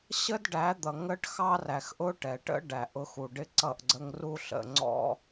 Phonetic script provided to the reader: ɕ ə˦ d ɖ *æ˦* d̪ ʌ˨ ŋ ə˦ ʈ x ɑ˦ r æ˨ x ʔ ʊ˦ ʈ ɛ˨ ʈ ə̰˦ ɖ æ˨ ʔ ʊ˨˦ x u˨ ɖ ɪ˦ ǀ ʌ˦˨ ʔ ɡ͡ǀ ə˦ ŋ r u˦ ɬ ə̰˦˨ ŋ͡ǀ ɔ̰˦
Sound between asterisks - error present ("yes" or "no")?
yes